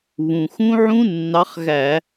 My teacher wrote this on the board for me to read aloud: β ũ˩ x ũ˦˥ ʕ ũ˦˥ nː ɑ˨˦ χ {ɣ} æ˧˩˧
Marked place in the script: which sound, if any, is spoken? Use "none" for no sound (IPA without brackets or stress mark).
ɣ